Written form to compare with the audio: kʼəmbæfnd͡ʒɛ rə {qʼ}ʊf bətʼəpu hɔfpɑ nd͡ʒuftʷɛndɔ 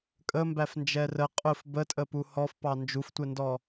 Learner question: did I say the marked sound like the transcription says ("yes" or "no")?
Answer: yes